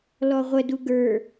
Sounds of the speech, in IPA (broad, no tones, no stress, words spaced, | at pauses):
lɔʁʷədu ɡə˞